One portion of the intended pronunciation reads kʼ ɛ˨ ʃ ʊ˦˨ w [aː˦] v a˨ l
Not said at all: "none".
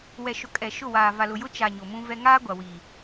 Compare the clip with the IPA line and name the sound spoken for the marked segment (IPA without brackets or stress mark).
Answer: aː˨